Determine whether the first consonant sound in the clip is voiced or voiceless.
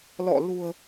voiced